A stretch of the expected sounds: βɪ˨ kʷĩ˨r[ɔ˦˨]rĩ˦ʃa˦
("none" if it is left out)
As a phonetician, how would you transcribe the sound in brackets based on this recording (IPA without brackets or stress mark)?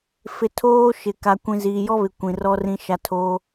ɔ˦